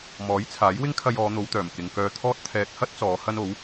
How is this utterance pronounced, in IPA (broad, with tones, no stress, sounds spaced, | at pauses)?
m ɔː˨˥ j t͡sʰ aː˨˥ j w ɪ˥ ŋ kʰ ɐ˧ j ɔː˨˧ n̪ o˨˧ w t̪ œː˨˩ m k ɪ˨ ŋ k œː˧ t̪ʰ ɔː˥ t̚ t̪ʰ ɛː˧ k̚ h ɐ˥ t̚ t͡s ɔː˨˧ h ɐ˥ n o˨˥ w